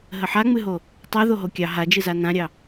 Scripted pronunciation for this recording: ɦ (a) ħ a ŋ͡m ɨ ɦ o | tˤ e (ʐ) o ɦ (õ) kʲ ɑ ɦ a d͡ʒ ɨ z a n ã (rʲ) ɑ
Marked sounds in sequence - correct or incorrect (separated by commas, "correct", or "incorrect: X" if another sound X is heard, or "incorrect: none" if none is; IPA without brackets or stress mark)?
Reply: incorrect: ə, incorrect: ð, incorrect: o, incorrect: ɾʲ